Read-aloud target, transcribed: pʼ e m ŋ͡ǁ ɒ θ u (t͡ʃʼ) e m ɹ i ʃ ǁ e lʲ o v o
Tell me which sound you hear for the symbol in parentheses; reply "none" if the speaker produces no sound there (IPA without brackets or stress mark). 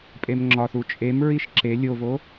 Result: t͡ʃʼ